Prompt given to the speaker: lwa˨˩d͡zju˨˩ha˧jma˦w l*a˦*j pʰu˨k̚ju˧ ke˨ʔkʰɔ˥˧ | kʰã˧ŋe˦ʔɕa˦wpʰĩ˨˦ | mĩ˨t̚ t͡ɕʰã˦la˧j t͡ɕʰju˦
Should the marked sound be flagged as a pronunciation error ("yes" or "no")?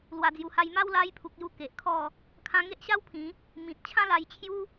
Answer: yes